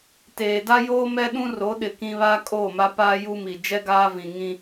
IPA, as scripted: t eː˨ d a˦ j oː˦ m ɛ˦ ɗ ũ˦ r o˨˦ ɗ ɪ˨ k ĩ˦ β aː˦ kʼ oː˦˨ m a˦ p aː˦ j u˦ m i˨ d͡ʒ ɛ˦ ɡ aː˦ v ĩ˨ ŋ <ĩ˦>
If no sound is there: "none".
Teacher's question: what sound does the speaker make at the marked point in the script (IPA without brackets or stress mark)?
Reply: ĩ˦